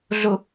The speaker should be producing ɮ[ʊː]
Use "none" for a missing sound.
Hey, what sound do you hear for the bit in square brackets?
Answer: ʊ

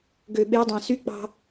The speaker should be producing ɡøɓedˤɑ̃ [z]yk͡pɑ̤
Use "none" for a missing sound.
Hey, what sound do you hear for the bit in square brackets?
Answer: s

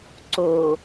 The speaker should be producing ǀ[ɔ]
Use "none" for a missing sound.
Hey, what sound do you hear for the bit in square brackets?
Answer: o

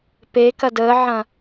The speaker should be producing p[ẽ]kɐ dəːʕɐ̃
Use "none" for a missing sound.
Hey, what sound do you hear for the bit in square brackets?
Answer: e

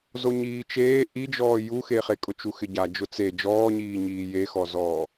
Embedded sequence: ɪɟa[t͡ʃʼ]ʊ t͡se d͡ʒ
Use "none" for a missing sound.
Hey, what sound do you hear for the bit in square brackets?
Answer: d͡ʒ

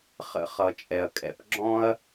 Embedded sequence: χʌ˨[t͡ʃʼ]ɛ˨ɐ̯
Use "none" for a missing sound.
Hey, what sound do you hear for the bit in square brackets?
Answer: t͡ʃʼ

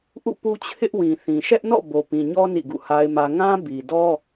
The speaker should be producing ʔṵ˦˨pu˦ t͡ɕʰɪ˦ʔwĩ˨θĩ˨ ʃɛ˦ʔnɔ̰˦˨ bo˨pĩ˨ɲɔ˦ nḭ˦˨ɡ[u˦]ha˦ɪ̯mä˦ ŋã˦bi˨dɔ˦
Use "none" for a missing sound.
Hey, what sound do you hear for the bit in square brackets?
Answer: ṵ˦˨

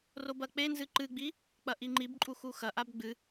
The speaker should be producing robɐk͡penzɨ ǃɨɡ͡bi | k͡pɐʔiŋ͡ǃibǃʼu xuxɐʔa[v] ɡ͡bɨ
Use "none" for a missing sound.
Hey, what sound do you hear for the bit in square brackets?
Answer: b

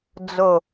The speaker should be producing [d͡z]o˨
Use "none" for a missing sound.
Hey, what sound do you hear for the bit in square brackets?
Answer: d͡z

